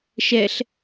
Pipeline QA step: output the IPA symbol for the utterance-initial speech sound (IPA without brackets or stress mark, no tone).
ʃ